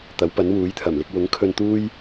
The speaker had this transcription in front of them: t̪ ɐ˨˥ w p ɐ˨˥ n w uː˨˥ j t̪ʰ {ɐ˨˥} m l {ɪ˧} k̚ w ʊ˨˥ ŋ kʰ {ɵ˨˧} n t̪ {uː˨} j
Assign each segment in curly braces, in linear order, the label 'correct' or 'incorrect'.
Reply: incorrect: ɐ˨˩, incorrect: ɪ˥, incorrect: ɵ˧, incorrect: uː˥

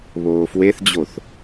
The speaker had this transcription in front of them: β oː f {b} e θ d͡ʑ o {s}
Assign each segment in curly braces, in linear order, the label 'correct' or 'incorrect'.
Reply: incorrect: w, incorrect: θ

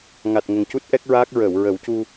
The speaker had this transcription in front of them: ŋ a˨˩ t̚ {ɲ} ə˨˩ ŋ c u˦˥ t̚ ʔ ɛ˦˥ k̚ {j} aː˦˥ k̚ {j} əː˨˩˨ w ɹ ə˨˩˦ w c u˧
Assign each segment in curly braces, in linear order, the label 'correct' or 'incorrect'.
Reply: incorrect: ŋ, incorrect: ɹ, incorrect: ɹ

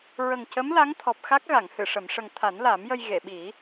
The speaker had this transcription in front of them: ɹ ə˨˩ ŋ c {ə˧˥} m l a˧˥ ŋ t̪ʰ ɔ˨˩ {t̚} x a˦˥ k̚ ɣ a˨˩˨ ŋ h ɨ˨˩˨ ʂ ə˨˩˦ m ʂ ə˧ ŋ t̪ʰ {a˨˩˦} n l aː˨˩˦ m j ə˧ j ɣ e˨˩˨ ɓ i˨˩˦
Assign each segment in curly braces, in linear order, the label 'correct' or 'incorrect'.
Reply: correct, incorrect: p̚, correct

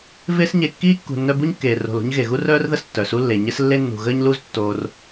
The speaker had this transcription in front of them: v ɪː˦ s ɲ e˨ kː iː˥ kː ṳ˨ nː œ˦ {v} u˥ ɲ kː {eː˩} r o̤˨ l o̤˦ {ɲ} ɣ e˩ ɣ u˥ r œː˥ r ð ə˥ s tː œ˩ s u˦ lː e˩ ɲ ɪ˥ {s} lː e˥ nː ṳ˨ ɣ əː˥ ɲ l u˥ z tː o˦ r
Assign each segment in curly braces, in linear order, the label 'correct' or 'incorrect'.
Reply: incorrect: b, correct, correct, correct

